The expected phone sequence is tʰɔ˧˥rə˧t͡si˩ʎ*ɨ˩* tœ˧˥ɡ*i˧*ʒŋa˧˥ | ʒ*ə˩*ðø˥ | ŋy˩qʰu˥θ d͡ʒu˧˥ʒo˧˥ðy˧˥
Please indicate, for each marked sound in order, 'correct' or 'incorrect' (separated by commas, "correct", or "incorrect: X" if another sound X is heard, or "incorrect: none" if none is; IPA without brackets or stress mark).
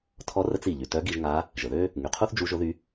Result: incorrect: y˩, correct, correct